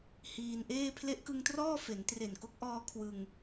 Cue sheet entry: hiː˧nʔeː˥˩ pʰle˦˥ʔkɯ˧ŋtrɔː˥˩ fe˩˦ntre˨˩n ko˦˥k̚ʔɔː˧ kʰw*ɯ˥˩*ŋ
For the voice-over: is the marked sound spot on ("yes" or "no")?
no